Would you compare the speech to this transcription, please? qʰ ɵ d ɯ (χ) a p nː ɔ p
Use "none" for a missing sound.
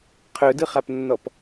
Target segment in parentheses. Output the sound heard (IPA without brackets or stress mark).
χ